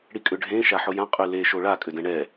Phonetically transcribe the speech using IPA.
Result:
ɽ i kʼ ʏ ɖʱ ẽ ʃ a ħ ʊ j ã qʼ y l e ʃ o ɭ a kʼ ʏ d ɛ̃ ɳ ɛ

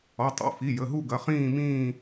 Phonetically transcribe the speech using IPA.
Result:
ɔ˩˧˩ tˤ ṵ˩˧˩ f i˩˧˩ j ə˩˧˩ ɦ u˥˧ ɡ ɐ˩˧˩ χ ĩː˥˧ m ĩː˥˧

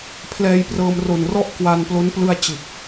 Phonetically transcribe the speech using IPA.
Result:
pʰ l ɛː˧ j p r ɤː˧ m r o˨˩ n r ɔ˥˩ ʔ k w a˧ n p l o˦˥ n p l ɯ˧ a̯ t͡ɕ ɯ˨˩ k̚

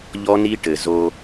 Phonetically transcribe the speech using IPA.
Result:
ʎ ɔ˧ n i˧ ʈ ɘ˨ z o˦

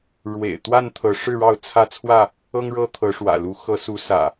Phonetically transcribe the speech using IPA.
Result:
ɻ w ḛ˨˩ ɪ̯ t̪ w a˥˨ n t̪ʰ ɤ˨˦ ʂ ɻ̩˥˨ ɻ ɑ˥˨ ʊ̯ t͡sʰ ä˦ t͡sʰ w ä˥˨ | ɤ˦ ŋ ɻ ɤ˦ t̪ʰ ɤ˨˦ ʂ w ä̰˨˩ l u˨˦ x ɤ˨˦ s u˨˦ s ä̰˨˩

